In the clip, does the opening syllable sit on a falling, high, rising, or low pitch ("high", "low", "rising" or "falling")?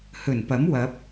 low